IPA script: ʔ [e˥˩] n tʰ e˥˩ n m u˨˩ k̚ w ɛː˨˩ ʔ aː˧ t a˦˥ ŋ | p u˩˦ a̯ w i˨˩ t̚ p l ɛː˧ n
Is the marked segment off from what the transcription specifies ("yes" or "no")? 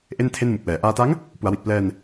no